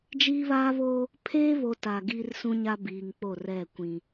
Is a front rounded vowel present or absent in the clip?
absent